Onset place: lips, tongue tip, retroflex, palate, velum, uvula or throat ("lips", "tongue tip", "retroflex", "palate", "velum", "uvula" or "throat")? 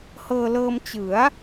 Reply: throat